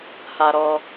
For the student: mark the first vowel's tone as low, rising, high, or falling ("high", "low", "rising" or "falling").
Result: high